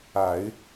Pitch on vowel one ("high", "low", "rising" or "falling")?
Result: low